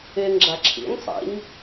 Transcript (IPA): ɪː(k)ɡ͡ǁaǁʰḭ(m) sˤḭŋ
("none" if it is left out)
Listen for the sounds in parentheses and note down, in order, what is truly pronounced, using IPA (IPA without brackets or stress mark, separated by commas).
ŋ, ŋ